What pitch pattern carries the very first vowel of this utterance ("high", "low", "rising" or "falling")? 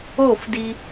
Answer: falling